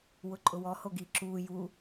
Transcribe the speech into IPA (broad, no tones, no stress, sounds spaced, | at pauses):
w ʊ ǃʼ ʊ w ɔ h o ɡ i ǁ uː j u